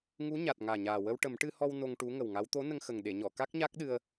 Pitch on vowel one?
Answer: rising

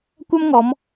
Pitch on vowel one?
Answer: high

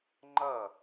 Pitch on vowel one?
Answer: falling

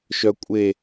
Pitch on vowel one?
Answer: high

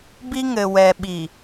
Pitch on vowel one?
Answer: high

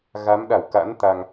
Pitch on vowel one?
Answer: rising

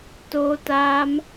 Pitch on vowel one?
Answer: high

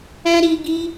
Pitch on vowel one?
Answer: high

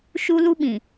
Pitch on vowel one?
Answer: high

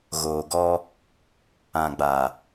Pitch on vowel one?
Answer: low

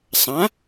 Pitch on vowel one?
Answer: rising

